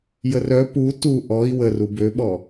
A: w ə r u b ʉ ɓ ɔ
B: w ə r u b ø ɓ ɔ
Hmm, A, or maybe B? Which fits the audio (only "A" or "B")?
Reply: B